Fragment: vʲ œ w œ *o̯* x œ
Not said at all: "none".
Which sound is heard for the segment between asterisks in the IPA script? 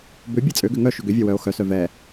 o̯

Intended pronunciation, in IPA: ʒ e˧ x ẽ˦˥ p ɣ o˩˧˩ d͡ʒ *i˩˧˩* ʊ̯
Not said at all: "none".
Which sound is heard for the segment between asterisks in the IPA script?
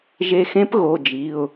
i˩˧˩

